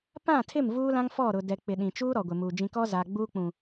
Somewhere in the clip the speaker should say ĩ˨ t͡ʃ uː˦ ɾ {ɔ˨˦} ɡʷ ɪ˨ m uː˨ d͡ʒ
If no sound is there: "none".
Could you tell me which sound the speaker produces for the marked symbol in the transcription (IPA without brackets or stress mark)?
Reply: ɔ˨